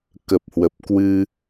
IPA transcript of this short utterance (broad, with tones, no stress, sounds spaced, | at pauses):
k ə˨˩ p̚ h w ə˨˩ p̚ k w ɨ˧